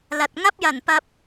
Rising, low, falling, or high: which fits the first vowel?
low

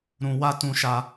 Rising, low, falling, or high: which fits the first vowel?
high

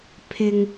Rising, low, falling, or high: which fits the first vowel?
low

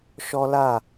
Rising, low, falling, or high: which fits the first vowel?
high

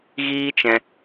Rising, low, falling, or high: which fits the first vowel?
high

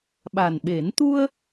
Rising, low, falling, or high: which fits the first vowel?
low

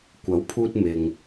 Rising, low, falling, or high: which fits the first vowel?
rising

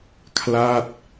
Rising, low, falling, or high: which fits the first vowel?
falling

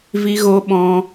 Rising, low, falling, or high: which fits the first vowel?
high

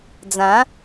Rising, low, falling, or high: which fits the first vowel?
rising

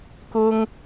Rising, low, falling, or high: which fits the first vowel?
high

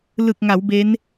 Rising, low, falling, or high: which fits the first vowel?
low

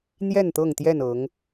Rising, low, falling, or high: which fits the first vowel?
falling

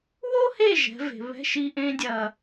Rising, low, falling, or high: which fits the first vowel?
high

